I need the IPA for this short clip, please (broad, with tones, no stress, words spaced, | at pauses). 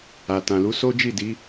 a˨tã˨lu˨˦ so˦d͡ʒi˦˨di˨˦